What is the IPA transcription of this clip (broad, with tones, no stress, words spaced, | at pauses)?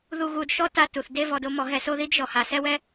ðu˧ ɣu˧d ʃɔ˦ ta˦ tu˨θde˦ vɔ˧do˦mɔ˨˦ɦɛ˧ so˦ði˦d ʒɔ˨ha˨sɛ˦wɛ˦